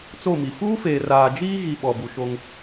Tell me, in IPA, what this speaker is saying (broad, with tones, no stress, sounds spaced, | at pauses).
t͡s o˦˨ m i˨ f uː˦ f eː˨ r aː˨ d͡ʒ iː˦ ɣ i˨ ɓ ɔ˨ b u˨ ʃ o˦ ŋ